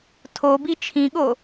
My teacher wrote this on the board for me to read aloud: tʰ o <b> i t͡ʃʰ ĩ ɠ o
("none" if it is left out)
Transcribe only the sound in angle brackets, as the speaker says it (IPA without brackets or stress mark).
b